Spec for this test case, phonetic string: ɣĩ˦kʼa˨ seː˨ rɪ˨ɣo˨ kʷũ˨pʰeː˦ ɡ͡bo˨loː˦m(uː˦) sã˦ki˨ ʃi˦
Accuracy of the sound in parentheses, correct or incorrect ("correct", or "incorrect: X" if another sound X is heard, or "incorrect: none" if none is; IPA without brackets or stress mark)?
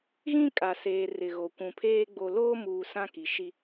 incorrect: uː˨